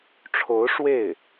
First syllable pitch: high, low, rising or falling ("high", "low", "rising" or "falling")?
rising